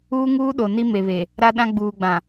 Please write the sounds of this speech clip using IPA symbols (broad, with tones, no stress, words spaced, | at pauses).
uː˦ŋuː˦ɗo˨ ni˦me˨βe˨ | ɾa˦ɗã˦ ɡ͡buː˨ɡ͡bã˨